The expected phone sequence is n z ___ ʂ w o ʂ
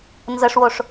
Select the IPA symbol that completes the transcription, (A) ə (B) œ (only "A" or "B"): A